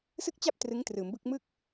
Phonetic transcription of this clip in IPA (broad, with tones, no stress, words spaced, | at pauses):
sɯ˥˩k̚t͡ɕa˥˩p̚ trɯ˦˥ŋtrɯː˩˦mbɯ˥˩k̚ mɯ˥˩k̚